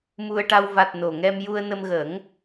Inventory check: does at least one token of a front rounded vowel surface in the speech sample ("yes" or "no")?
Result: no